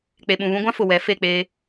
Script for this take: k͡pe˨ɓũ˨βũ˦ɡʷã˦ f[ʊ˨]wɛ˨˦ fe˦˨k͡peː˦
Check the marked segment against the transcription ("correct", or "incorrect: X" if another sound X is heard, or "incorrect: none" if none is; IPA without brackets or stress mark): correct